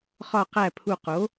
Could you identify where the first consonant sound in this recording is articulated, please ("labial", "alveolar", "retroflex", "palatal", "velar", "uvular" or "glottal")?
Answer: uvular